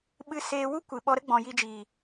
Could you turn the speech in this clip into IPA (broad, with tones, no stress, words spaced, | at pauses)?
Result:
ɓɨ˧ seː˧ wu˦kʷɨ˨ɓɔ˧ɾə˦ ɡ͡bɔ̃˨ji˧d͡ʒiː˨